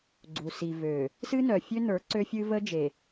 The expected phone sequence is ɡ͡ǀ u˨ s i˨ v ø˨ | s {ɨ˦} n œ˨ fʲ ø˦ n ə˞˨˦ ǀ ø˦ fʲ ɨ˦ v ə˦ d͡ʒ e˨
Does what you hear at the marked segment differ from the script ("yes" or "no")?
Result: no